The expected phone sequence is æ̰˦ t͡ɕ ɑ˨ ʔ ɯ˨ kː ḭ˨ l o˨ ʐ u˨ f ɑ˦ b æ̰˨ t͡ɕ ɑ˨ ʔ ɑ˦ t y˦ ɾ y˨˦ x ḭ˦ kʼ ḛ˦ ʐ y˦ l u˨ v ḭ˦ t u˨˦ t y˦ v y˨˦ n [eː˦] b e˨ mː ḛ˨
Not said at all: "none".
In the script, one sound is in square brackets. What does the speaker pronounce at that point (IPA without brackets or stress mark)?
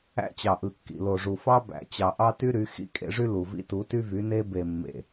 e˦